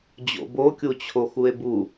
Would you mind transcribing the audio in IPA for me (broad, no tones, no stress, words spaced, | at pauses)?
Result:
d͡ʑo̰bokʲut͡ɕʰo xue̯bu